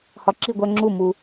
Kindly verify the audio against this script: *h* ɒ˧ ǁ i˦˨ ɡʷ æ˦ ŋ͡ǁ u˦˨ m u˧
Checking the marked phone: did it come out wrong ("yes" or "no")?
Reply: no